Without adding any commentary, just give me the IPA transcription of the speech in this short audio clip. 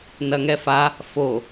n ɐ ŋ ɛ f a | f o

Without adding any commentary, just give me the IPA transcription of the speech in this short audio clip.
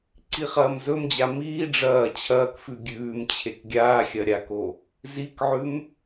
ǀ i χ ɐː m z ɵ m d͡ʑ a m iː ɖ͡ʐ ɐː t͡ɕʰ ɐː k f ʉ ɡʲ ʉː m t͡ɕʰ e k ɡʲ aː xʲ ɐ ɾʲ a k o | z i k ʕ ʉ m

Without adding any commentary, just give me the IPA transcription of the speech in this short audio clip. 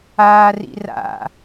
aː r ḭ r a̰

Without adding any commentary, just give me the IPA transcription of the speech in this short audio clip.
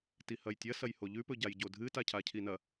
t i h ɐ j tʲ ɐ s ɐ j h o ʎ ʉ p ɵ ɟ a j ɟ o dʱ ɨ t a cʰ a cʰ i n ɐ

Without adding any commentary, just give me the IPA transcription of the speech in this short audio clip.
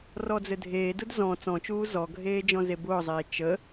r ɔ d͡z ɘ dʱ eː d ʊ d z ɔ̃ t͡s ɔ̃ t͡ʃ uː z ɔ ɡʱ eː d͡ʒ ɔ̃ z e b ʊː zˤ eː t͡ʃ ə

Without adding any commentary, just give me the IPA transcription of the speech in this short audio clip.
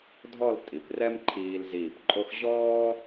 dʱ ɔ˥˧ l tʼ i˩˧ p r ɛ˥ m ǃʰ iː˧ l z iː˧˩ p ǃʼ o˥ x ʑ ɔː˥

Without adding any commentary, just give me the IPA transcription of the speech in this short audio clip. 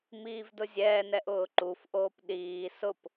m iː v d ʊ zʲ ɛː n ɛ ʔ ʊː ǃ u f ʔ oː p ɗ iː s ʊ p

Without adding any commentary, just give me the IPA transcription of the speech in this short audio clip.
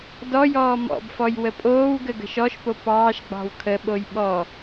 d ɔ j ɔː m ɔ̰ b f ɔ j w ə pʼ oː w ɡ ə ɡ ə̤ ʃ ɔ ʃ p o p ɑː ʃ ɡ͡b ɑ̤ w kʰ ə ɓ o j ɓ ɔ

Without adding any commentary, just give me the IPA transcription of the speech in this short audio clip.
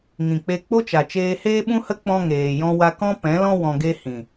ŋ ĩ˨ k͡p e˧ k͡p o˦ t͡ʃ a˨ t͡ʃ eː˧ h eː˦ ɓ ũ˦ h ə˦ k͡p ɔ̃˦ ŋ eː˨ j ɔ̃˦ w a˧ k ɔ̃˦ p ɛ̃˨˦ l ɔ̃˦ w ɔ̃˧ ɡ e˦ h ĩ˨

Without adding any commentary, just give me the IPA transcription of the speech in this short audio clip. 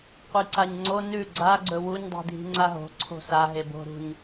qʷ i ǀ a ɲ ŋ͡ǀ o n ʉ ɡ͡ǀ a ɡ͡ǀ ɵ w u ɲ dˤ i̤ dʱ i̤ ŋ͡ǀ a ɦ o̤ ǀʰ o̤ s a ɦ e b o̤ ɾ ṳ ɲ

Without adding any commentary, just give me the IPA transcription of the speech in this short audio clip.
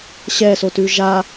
ɕ ɛ s o t ʉ ʒ a

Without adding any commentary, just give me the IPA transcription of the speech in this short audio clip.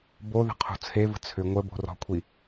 b o ð ə̤ qʰ o̤ t͡sʰ e v ə̤ t͡sʰ ʏ ŋʷ ə b o̤ r ɔ̤ kʷʰ i

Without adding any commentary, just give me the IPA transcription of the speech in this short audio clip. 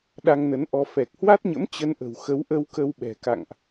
ɗ a˧ ŋ n ə˨˦ n ʔ ɔ˧ f ɛ˨˩ k̚ h w a˦˥ t̚ ɲ ə̰˧˥ m t͡ɕ ə˧ n ʔ ə̤˨˩ w x ə˨˦ w ʔ ə˧ w k ə˧ w ɓ ɛ̤˨˩ k a̰˧˨ ŋ ʔ

